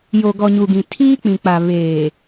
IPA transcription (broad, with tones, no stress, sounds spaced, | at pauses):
j o˨ ɡ ɔ˨ ɲ u˨ ɡ ĩ˨ tʰ iː˦ k͡p ĩ˨ k͡p a˨ β eː˨